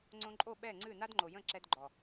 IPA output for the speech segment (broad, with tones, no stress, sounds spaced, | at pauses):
ŋ͡ǀ õ˧ ǃʼ o˦˨ ɓ ɛ˦˨ ŋ͡ǀ ɨ˦˨ n a˦ d ŋ͡ǃ o˨ j ə̃˦˨ ǁ ɛ˧ d ɡ͡ǃ ɔ˨